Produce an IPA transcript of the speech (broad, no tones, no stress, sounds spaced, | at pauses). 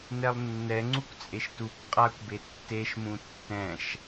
n ɛ lˠ nː ɛ ŋ͡ǀ u kʷ t͡sʼ e ʃ t u kʷ qʼ a kʷ b e tː e ʃ m ũ tː ɛ̃ ʃ